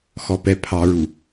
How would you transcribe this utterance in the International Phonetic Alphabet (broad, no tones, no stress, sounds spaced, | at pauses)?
x ɔ p ɛ pʰ ɑ ɹ u